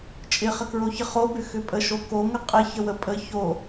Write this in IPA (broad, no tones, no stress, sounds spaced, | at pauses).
t͡ʃʼ ɪ χ ə k ɹ o ç ə χ o b ʏ x ʏ pʼ ə ʃ o k o ŋ ə qʼ ɪ ç ə w ə pʼ ə ç o